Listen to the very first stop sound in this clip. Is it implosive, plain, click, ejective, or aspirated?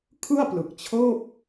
aspirated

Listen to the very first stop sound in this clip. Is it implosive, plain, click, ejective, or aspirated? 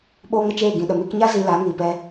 implosive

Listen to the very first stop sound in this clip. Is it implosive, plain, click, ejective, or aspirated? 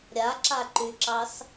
click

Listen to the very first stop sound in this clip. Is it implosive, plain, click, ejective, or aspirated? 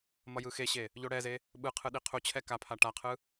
implosive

